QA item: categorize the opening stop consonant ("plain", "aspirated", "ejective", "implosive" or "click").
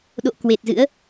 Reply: implosive